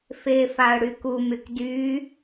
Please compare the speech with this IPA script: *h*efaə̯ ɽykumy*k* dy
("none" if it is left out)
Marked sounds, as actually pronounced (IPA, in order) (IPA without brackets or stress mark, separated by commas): f, k